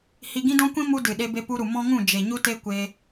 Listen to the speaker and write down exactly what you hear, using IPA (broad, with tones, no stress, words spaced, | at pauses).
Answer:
hi˧ ɡĩ˦dɔ̃˦kʷĩ˦ mu˦dɨ˨ ɗe˧ be˧pu˧ɾu˨ mɔ̃˦ŋũ˦˨ d͡ʒe˨ɲu˦te˦ kʷe˧